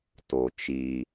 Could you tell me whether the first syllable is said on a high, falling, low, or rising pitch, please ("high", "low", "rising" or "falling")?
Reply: low